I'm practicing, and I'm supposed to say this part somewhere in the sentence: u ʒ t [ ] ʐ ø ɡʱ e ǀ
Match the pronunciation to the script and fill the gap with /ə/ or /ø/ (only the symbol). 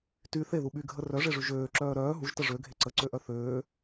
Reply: ə